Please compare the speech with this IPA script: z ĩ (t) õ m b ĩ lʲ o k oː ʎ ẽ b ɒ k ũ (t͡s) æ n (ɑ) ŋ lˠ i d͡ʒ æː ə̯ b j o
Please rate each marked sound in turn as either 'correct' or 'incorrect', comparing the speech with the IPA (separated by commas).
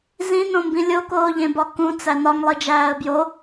incorrect, correct, incorrect